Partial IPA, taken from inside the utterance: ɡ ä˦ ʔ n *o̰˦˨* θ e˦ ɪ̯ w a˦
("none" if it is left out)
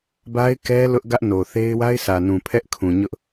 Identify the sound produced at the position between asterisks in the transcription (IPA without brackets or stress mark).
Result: o˨